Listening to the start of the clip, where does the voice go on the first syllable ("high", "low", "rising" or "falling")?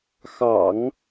low